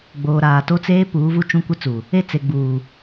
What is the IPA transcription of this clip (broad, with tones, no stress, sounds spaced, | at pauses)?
ɡ͡b oː˨ ɾ aː˨ t o˦ t͡s eː˦ p uː˨˦ v u˦ t͡ʃ ũ˦ kʷ ɪ˦ t͡s u˨ | e˦˨ t͡s e˨ ɡ͡b uː˨